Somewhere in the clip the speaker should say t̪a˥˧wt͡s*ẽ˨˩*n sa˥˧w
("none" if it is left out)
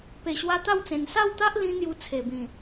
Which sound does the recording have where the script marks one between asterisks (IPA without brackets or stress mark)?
ẽ˨˩